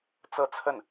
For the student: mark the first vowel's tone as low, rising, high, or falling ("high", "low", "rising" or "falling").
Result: falling